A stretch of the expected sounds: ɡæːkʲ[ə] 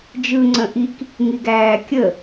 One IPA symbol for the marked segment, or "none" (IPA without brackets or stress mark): ə